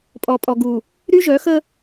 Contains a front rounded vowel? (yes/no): yes